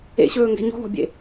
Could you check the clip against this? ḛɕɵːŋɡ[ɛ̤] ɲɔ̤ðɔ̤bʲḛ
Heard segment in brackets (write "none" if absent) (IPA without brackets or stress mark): ɛ̤